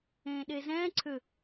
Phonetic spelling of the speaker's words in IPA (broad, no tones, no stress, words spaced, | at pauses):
ẽːɗezɛ̃ː ǀʰʏ